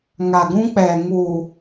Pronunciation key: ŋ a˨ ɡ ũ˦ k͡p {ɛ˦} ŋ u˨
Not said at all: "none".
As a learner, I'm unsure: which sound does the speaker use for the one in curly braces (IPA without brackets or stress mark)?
ɛ˨